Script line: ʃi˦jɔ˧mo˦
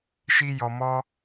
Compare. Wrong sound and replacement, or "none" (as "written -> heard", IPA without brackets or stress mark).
o˦ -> ɔ˦